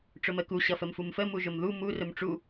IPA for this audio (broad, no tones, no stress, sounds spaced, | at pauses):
ʈ͡ʂ ʊ m ə k u ɕ ʌ f ə m f u m f ə m u ʒ ʊ m ð u m u r ʊ m ʈ͡ʂ u